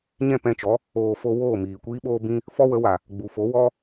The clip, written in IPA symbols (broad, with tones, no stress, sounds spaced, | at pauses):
ɲ ɛ̃˦˨ p ɛ̃˧ t͡ʃ ɔ˨˦ | oː˧ f o˦ w oː˦˨ m iː˨ kʷ iː˦ ɓ oː˦ b ĩ˦ | f ɔ˦ w ə˨˦ w a˨ | ɡ͡b u˨ f o˨˦ w ɔ˦